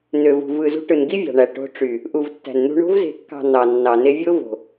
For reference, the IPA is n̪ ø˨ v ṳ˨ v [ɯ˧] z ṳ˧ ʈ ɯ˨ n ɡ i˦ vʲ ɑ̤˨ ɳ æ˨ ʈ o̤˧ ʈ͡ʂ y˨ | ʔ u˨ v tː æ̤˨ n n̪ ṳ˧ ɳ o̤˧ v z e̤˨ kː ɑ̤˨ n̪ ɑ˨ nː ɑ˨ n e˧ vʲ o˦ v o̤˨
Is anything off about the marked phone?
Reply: yes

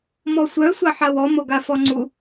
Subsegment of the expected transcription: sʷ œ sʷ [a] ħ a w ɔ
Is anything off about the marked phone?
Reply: no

